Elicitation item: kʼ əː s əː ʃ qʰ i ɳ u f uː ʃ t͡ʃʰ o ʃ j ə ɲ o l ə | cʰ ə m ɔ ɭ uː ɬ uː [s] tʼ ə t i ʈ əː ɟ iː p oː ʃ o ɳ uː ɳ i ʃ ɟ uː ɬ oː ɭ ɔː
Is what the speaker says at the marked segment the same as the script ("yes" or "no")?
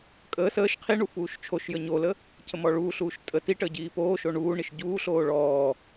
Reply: no